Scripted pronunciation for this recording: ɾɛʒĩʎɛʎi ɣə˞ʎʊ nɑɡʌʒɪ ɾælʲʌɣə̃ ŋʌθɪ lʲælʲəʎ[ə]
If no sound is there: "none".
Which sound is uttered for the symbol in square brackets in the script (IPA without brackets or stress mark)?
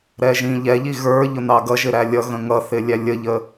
ə